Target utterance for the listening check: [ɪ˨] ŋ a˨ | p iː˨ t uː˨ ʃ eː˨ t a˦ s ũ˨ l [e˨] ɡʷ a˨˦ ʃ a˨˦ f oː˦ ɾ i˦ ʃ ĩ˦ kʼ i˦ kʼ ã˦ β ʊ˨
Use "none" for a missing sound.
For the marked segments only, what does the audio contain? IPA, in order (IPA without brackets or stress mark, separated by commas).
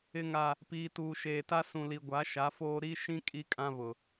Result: ɪ˨, i˨